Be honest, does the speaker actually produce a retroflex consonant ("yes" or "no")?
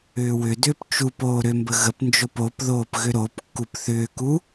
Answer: no